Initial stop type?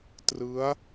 plain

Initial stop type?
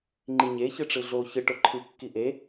click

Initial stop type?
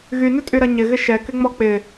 ejective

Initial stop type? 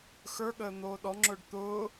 implosive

